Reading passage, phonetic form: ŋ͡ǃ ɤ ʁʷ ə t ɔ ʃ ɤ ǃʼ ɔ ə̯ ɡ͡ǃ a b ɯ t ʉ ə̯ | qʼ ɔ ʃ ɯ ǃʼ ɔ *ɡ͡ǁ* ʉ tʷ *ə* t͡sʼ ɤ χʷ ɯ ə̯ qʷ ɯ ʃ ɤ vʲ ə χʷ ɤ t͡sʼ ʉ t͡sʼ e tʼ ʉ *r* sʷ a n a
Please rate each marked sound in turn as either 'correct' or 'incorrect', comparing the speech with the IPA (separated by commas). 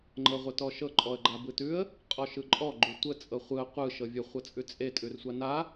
incorrect, correct, correct